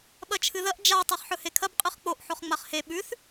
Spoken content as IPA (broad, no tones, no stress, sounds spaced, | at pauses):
ɓ ɐ t͡ʃʰ ɨ ð ɐ ʔ d͡ʒ a tˤ e χ ħ ɵ h e kʰ ɐ b qʼ ɨ χ k͡p o ʔ ħ o χ ŋ͡m a χ h e ɓ ʉ θ